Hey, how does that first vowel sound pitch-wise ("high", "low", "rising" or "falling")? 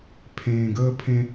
low